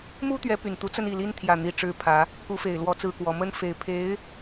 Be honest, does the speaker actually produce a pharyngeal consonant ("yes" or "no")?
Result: no